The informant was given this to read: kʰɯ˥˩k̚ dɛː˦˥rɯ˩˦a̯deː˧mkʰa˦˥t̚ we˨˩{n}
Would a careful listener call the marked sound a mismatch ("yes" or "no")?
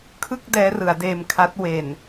no